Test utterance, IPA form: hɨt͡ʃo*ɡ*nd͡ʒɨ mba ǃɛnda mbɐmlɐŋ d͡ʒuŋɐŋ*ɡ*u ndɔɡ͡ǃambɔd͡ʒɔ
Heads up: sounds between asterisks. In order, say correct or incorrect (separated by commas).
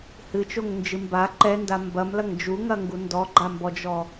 incorrect, correct